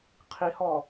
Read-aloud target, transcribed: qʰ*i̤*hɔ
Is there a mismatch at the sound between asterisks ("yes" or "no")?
yes